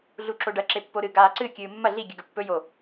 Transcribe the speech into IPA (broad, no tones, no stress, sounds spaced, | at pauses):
ɮ u ǁ o ɖ ɐ ǁ e pː o ɾ ɨ ɡ aː ǀ ɨ kʲ ɨː mː ɐ ɮ i ɡʲ ɨ ɡ ɵ pː ɵ j o